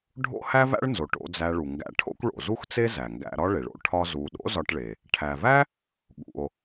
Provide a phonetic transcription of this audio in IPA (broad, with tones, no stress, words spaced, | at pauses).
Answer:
ɖʱo̰˥hæ˥væ̰˥ɭnzo˩ ʈo̰˧ d͡zæ˧ɭu˩ŋɡæ̰˧ ʈʰo̰˥kʷ ɭo̰˩zu˥xt͡se˥ zæ˩ŋɡæ̰˧ɾɒ˥ ɭe˩ɭo̰˧ ʈʰɒ˥zu˧ ɗo̰˥zɒ˧ʈɭe˩ | ʈʰæ˩væ˥ | ɠṵ˩o̯